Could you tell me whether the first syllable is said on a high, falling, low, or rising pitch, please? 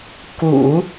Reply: low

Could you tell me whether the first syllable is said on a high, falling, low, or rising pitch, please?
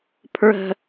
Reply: high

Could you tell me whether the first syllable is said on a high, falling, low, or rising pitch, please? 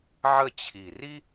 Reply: falling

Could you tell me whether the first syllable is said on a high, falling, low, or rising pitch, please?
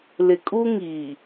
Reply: low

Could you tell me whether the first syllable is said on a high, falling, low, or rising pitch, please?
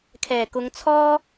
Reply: low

